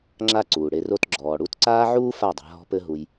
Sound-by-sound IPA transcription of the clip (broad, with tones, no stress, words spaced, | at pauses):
ŋ͡ǁa˦ǀuː˨ɽe˧ro˦t ɡ͡ǁɔː˨ ɽu˧tǀaː˦ʕuː˦ fa˦˨dˤa̤˧ɦɔ̤˦pɘ˦ ɦu˧j